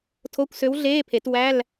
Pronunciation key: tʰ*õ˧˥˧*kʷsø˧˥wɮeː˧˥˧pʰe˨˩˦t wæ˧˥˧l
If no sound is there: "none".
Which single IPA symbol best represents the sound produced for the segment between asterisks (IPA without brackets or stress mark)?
o˧˥˧